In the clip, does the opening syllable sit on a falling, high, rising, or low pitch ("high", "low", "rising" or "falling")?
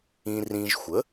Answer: low